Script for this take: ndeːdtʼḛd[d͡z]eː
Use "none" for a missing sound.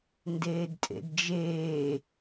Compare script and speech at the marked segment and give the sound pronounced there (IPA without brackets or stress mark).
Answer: d͡ʒ